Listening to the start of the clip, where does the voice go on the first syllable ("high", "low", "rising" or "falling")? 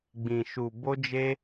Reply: low